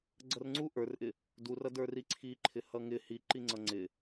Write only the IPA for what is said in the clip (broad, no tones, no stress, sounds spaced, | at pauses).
ɡ͡ǀ ʌ r ŋ͡ǀ u ʔ ə˞ r ʔ ɪ | d u r ʌ d ə˞ r i ǀʰ i ǃʰ ɪ h ʌ ŋ ɪ h i ǃ i ŋ͡ǀ ʌ ŋ͡ǀ ɪ